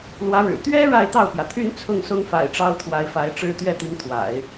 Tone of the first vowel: rising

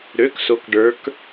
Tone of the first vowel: rising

